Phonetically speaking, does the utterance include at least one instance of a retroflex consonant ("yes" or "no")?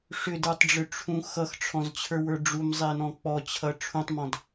yes